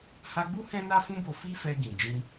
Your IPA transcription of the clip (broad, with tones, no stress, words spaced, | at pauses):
ha˧ɡ͡bu˦ hɛ̃˦na˦fũ˦bo˧ fi˦fɛ˧ ɡĩ˨ d͡ʒĩ˧